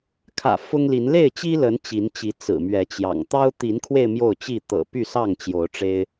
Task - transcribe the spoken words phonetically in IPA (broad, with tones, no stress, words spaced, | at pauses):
kʰä̰˨˩ fʊ˦ŋli˨˦n le˥˨ɪ̯t͡ɕi˦lə˨˦n t͡ɕi˨˦nt͡ɕi˨˦ t͡sɹ̩˨˩mɥɛ˨˦t͡ɕjɑ̰˨˩ŋ t̪ɑ˦ʊ̯ t̪i˨˦nkʰwe˧ɪ̯ mjo˥˨ʊ̯t͡ɕi˥˨ t̪ɤ̰˨˩ py˥˨sɑ˥˨ŋ t͡ɕjo˨˦ʊ̯ʈ͡ʂe˦ɪ̯